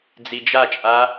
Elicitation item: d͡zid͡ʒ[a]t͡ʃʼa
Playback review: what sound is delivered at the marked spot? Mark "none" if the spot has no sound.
a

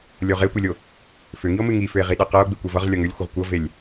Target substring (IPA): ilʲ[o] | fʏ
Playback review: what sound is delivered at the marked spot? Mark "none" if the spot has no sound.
o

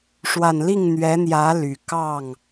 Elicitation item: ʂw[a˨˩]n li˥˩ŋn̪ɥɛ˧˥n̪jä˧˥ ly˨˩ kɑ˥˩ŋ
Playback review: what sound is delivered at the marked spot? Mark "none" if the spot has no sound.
a˨˩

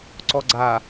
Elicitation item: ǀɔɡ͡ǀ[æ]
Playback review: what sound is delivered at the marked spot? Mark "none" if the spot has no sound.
a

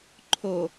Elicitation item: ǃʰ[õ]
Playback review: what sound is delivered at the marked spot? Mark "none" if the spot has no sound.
o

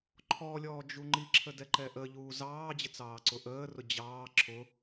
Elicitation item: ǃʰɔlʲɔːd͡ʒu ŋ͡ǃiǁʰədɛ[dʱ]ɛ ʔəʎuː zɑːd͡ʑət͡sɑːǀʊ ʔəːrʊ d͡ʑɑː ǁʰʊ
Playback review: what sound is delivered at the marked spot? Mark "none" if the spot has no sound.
ǃ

